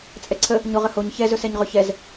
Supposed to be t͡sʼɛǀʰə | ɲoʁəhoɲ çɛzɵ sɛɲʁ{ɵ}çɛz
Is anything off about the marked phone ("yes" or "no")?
no